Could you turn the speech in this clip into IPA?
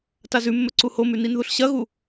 t a z ʉ mː ɵ ǀ u h o m ʉ n i n ð u ɬ ɕ ɐ ɣ u

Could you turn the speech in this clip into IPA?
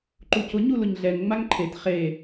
ǃ u c ʊ ɲ u l ʊ ɲ ɮ ɛ ŋ ŋ͡m a ŋ ǃʰ e t χ e

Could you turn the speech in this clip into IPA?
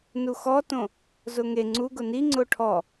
n u x ɔ t õ | z ʊ ŋ e ŋ͡ǀ u ɡ ʊ n i ŋ͡ǀ ʊ ʈʰ ɔ

